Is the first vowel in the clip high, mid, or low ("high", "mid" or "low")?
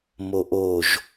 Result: mid